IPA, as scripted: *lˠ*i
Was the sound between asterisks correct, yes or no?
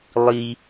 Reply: yes